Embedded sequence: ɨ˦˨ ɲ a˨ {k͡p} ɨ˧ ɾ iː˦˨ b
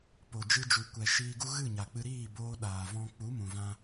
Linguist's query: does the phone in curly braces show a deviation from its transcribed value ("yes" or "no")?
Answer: no